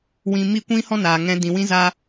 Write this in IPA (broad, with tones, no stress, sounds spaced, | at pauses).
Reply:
w ĩ˧ m i˦˨ kʷ ĩ˦ h ɔ̃˦ n aː˨ ŋ ɛ̃˧ d ĩ˨ w ĩ˦ z a˦